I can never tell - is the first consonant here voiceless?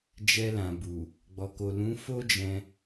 no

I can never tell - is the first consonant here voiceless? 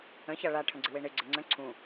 yes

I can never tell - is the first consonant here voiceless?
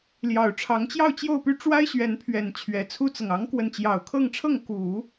no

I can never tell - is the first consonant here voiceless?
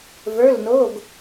no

